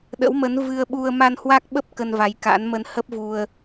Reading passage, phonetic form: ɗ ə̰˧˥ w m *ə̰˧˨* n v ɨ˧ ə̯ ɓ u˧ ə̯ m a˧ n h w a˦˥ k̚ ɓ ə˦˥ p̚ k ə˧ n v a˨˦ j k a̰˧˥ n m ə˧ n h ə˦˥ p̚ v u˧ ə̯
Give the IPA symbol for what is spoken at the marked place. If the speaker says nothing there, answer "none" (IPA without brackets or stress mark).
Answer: ə˨˦